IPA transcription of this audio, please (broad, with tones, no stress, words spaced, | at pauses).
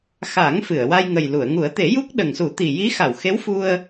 xa˨˩˦ŋ fɨ˨˩˨ə̯wa˧jŋə˨˩j lu˨˩˨ə̯ŋu˨˩˦ə̯t̪e˨˩˦ju˦˥k̚ ɗə˨˩ŋsu˨˩˦t̪i˨˩ ji˧˥xa˨˩˨wxe˧˥wfu˧ə̯